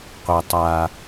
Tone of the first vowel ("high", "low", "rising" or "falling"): high